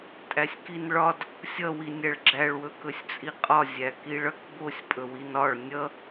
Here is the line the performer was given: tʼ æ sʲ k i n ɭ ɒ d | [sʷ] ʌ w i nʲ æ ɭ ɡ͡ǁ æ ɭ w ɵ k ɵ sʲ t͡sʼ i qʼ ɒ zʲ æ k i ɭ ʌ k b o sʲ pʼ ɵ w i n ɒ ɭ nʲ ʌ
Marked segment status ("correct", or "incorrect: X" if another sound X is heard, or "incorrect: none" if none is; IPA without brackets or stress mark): incorrect: sʲ